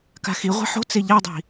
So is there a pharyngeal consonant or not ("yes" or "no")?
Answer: yes